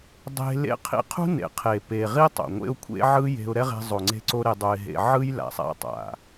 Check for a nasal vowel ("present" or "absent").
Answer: absent